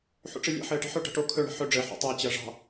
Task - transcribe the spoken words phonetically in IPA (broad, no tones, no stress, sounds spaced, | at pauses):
ħ ṵ ʈ͡ʂ ɘ lʲ ḛ ħ ɘː ʈ e̤ ħ o ʈ ə̤ ʈ o kʰ ɵ ɳ ə̤ ħ ɵ ɖ͡ʐ ɘ ħ ṵ tˤ ɜ t͡ɕ ɜ ʐ ɑ̤